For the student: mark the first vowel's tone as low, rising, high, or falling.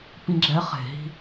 high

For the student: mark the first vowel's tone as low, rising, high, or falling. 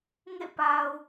falling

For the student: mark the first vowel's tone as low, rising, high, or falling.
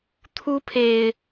high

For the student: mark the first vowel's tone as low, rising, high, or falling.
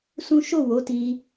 high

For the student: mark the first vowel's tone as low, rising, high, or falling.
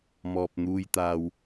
low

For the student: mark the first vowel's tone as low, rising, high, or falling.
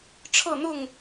falling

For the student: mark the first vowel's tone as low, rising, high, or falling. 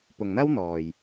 low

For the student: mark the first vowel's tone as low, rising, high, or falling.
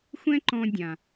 high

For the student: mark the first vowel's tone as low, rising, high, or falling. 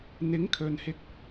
rising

